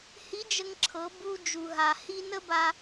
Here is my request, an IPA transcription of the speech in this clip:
h i˧˥ d͡ʒ ə˧ ŋ ǁʰ ɤ˩˧ b u˧ d͡ʒ u˩ ɦ a˩ h i˧ n ə˥ b a˧

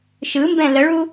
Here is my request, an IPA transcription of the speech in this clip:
ʃ ɯ m b ɛ̃ l ə ɭ u

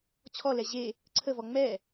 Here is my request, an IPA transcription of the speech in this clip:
t͡ɕʰ ɔ l ɛ ʑ e | ǀʰ ə v ɔ ŋ͡m ɛ

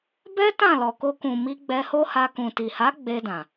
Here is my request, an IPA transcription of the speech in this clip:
b ɛ˦ t ã˦˨ l ɔ˨ k o˧ k ũ˨ m i˧ ɡ͡b ɛ˧ h o˦ h a˧ k ũ˨ t i˨ h a˨˦ ɡ͡b e˧ d ã˨

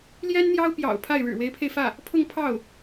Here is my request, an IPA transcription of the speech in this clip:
l j ɛ˥ n n̪ j ɑ˥ ʊ̯ p j ɑ̰˨˩ ʊ̯ pʰ a˥˩ ɪ̯ ɻ ɻ̩˨˩ w e˧˥ ɪ̯ pʰ e˧ ɪ̯ f ä˥˩ | pʰ ʊ˥˧ ŋ pʰ ɑ˥˩ ʊ̯

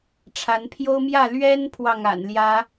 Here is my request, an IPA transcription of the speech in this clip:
ʈ͡ʂʰ a˨˦ n pʰ j o˦ ʊ̯ m j ä˥˨ l ɥ ɛ˦ n pʰ w ɑ˥˨ ŋ a̰˨˩ n l j ä˨˦

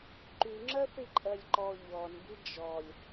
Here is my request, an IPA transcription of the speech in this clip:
ǃ y ŋ͡ǁ ɜ θ i ǃʼ ɜ lʲ ǃ ɔ ʎ ɔ n b i d͡ʒ ɔ lʲ

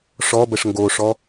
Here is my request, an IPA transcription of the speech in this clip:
ʂ ɔ b ə ʂ ŋ ɡ o ʂ ɔ

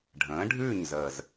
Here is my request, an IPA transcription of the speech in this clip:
ɖʱ ə̃ː˩˥ ɖʱ ʉː˥˩ ɲ z əː˨˩ z

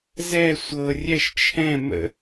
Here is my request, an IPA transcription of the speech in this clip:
z ɛ sʷ ɤ rʲ ɛ ʃ t͡ʃʰ ɛ̃ m ə̰

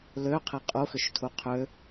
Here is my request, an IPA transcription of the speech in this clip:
l ø qʰ e qʼ u x ʏ ʃ tʰ u qʰ ø

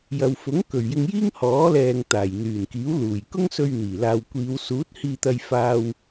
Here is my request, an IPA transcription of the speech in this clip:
j ɐ˨ w f ʊ˨˥ ŋ k ɵ˨˩ ɥ j ɪ˧ ŋ j iː˥ ŋ h ɔː˨˥ l ɛː˨ ŋ t̪ aː˨˩ j n̪ yː˨˩ n k iː˨˥ w l uː˨˩ j k ʊ˥ ŋ s ɵ˧ ɥ n̪ iː˨˩ l aː˨ w kʷ iː˨˧ w s uː˨˥ t̚ h iː˧ t̪ ɐ˧ j f aː˧ w

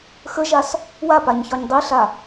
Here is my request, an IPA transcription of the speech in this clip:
x ə ʒ a s | w a p a ɲ ç ɒ ɲ dˤ i ɬ a

